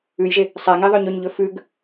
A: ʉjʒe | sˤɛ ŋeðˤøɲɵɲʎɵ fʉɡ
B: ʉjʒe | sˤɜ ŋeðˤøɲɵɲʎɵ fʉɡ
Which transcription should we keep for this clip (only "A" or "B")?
A